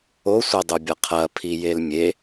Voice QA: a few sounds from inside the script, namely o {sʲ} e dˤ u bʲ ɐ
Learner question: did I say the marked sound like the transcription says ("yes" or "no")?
no